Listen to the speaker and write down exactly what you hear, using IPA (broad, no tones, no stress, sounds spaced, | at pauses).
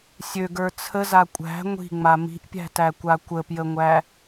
sʲ ø ɡ ə˞ t͡sʰ ə z a kʷʼ æ̤ ŋʷ i̤ ŋ͡m a m i̤ ʔ pʲ æ̤ t æ kʷ a kʷ ə p j ə ŋʷ æ